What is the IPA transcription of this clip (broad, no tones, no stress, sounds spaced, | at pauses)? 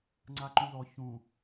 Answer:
ŋ͡ǀ a ǃ ũ ð ɔ ç ũ